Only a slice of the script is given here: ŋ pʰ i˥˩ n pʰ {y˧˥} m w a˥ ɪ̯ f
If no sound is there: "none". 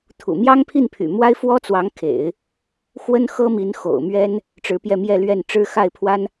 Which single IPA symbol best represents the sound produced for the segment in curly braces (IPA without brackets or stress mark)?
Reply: y̰˨˩